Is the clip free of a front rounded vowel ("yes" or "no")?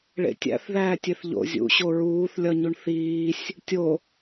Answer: yes